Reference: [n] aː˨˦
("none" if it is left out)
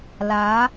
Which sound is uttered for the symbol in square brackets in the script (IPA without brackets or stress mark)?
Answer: l